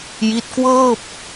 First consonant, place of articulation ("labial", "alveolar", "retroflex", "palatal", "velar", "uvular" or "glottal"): palatal